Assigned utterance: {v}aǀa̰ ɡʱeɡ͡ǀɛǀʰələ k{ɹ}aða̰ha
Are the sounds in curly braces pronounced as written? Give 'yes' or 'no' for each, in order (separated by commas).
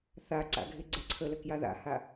no, no